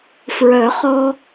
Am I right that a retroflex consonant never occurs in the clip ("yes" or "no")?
yes